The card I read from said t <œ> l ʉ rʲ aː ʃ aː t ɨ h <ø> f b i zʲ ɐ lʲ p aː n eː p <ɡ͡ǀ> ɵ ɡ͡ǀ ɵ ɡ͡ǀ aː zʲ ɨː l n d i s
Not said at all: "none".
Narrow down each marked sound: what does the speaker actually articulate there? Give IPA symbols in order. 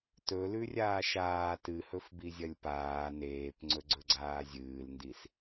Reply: ɵ, ɵ, ŋ͡ǀ

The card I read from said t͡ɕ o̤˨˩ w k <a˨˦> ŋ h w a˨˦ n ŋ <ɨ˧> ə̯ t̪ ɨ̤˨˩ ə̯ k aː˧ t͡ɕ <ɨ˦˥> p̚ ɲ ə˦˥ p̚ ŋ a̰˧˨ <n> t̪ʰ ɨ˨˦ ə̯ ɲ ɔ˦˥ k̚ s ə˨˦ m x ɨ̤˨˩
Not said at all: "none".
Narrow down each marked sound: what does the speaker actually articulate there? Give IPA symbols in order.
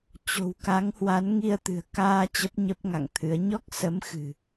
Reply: a˨˦, i˧, ə˦˥, ŋ

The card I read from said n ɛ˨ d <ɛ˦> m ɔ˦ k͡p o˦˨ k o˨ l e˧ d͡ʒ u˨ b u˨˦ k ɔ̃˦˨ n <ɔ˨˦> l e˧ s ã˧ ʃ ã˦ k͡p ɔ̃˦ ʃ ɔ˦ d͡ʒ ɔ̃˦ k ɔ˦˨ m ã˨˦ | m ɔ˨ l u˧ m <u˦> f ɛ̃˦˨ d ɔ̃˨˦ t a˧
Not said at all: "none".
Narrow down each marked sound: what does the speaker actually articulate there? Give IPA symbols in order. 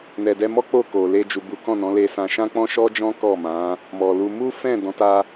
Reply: ɛ˧, ɔ̃˨˦, u˦

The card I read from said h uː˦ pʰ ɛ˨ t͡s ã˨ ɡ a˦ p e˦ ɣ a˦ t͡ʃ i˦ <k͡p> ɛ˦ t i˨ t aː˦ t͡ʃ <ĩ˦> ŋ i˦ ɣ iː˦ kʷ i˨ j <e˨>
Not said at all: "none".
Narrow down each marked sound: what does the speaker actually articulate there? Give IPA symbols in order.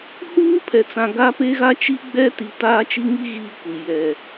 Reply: ɡ͡b, i˦, ɛ˨

